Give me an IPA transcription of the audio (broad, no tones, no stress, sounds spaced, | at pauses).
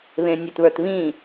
β ẽ nʲ ɛ t β ə˞ t β ĩ